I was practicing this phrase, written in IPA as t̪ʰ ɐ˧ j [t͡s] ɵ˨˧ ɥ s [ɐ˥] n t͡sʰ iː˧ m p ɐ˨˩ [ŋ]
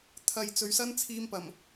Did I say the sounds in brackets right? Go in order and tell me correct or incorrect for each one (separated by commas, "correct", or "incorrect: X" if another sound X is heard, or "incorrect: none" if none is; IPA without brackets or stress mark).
correct, correct, incorrect: m